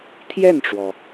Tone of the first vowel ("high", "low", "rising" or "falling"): falling